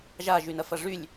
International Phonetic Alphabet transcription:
ʒ a ʒ y n ɐ f ɐ ʐ y lʲ

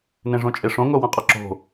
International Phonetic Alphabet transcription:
n ẽ ʐ õ t͡ʃʼ e ʂ õ ŋ o w ã qʼ a ǁ o̤

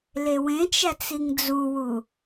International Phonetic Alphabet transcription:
l e w ẽ t͡ʃ æ t͡s i ŋ d͡z u w u

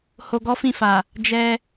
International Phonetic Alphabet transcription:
h o˧ ɡ ɔ˦ f ĩ˦˨ f a˨ | d͡ʒ ɛ˧

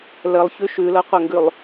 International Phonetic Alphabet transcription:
l ə lˠ ç ʉ ʃ ʉ l ɤ qʷ ə ŋ ɡ ʉ lˠ

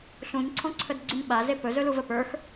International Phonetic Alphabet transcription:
ɬ ũ ɲ ǀʰ ɔ̃ ǀʰ ə d ɡ͡ǀ y ɲ ɓ a z e p ɵ z ɵ l u v ə p ə˞ x

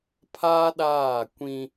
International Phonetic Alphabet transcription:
pʰ aː˦ ɗ aː˦˨ kʷ ĩ˦

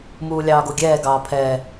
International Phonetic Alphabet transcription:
m uː lʲ ɑː ɡ o ɡʲ ɛː ɡ ɑː pʰ ɛ

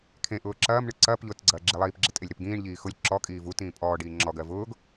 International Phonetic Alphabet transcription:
kʰ ẽ ʔ ʊː ǁ ɐː m ɳ ɯ ǀ ɐː p ʎ ʊː t ɡ͡ǀ ɐː ɡ͡ǁ i lˠ iː p ɡ͡ǁ e tʼ e lʲ ɾ e p ɡ ĩː ɳ ʎ iː x ʊ lʲ ǁ ɔ kʼ iː v u t ĩː pʼ ɔː ɖ iː ŋ͡ǁ ɔ ɡ ɜ v ʊː ɡ

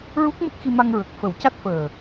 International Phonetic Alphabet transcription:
ɹ u˦˥ k̚ m ə˦˥ k̚ x i˧ m a˧ ŋ ɹ ə˨˩ k̚ f ə˨˩˦ w c a˦˥ t̚ f əː˨˩

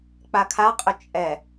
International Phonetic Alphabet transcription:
k͡p a kʰ a qʼ ʏ t͡ʃʼ ɛ

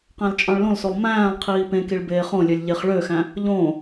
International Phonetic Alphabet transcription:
q æ̃ l t͡ʃʼ ɑ̃ ɭ l õ l s o lˠ m æ̃ː lˠ qʰ iː p ẽ k i ɭ b eː χ õ lʲ ø lʲ ʎ e χ ɭ ø x æ̃ | ʎ õ

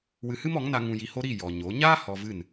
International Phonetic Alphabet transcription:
w ɨ˧ h ɨ˦ m ɔ˨˦ ŋ n a˧ ŋ ũ˧ j i˧ h o˦ ɾ i˦˨ j ɔ˨ ɲ o˨˦ ɲ aː˦ h ɔ˧ v ɨ˦˨ n

